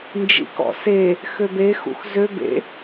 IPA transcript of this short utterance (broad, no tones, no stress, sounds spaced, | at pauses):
n d͡ʒ ḭ k ɔ̰ s e | x ø b e x ṵ x z ø b ḛ